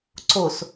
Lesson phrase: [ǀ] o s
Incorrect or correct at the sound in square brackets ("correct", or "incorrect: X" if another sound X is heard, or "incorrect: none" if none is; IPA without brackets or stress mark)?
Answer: correct